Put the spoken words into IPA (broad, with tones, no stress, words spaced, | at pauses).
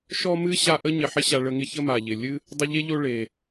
ʃɔ˦mɨ˦ ɕa˦ʔə˥ ɲɪ˨ħɪ˦ɕa˨ ɭə˨ŋɪ˦ çə˦ma˩ʎɪ˩ lʲɨ˦ | dˤə˦ʎe˥ʎo˦ ɭe˩